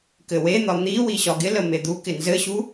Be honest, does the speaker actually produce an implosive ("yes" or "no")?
no